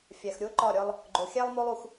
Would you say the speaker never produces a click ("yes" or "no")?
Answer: no